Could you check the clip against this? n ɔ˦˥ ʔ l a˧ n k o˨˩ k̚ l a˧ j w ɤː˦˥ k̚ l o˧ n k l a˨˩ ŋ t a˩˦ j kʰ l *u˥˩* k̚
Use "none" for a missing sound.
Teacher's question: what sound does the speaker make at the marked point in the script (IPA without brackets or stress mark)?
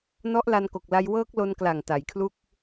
u˥˩